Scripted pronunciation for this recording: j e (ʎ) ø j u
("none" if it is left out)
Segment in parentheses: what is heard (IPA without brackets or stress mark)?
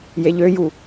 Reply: ʎ